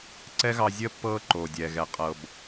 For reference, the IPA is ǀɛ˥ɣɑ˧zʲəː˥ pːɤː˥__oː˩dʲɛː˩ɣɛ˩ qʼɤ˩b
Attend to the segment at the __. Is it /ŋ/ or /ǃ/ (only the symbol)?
ǃ